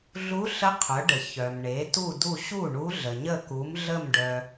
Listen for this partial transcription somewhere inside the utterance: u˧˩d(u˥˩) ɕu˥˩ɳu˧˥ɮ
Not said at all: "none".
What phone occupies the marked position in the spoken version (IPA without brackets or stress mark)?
u˧˩